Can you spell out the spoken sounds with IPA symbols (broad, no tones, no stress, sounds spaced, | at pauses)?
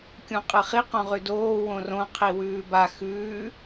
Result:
kʲ ũ qʼ ɨ χ i q õ ʁ ʉ d oː w õ r õ qʰ i w ʉː b a x ʉː